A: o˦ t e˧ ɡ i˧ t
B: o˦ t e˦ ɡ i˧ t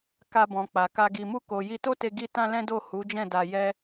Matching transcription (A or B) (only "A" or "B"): A